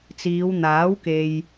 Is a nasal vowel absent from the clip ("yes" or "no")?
yes